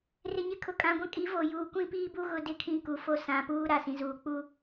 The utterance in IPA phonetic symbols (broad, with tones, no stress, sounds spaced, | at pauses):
r ɪ˨ ɲ ɪ˨ kʰ ʊ˨ kʼ ã˨ ɡʷ ã˦ kʼ i˨˦ v o˨ j uː˨ kʷ ĩ˦ p iː˦ b u˦ ɣ ʊ˦ d ɪ˦ kʰ ĩ˦ k u˨ f o˦ s ã˨ p uː˦ ɾ a˨ s ĩ˨ z uː˨ k͡p u˦